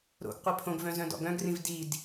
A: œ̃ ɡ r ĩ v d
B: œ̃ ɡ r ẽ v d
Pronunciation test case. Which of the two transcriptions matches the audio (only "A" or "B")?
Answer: A